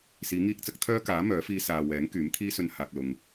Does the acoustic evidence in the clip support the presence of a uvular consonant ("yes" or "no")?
no